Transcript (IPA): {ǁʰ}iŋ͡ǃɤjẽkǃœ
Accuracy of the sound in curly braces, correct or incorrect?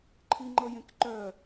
incorrect